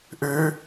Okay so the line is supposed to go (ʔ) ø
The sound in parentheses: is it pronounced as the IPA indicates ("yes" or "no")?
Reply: yes